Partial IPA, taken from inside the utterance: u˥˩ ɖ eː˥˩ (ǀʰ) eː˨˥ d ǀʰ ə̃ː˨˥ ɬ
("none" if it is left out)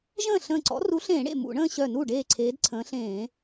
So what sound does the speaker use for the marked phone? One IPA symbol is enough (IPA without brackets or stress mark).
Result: ǀʰ